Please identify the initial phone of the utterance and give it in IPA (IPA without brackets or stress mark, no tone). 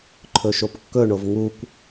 ǃʰ